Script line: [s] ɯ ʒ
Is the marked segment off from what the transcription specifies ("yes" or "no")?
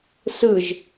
no